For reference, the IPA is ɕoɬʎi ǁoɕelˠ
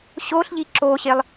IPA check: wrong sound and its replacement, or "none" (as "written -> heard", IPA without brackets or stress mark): none